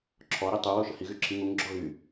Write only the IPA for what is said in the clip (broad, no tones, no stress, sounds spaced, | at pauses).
ǁʰ ɔ ɾ i tˤ u w o ʃ ə h i ɣ y ǁʰ i ŋ u ŋ ɡ͡ǁ ɔ ɣ y